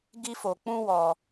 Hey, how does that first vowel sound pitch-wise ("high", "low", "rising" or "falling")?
high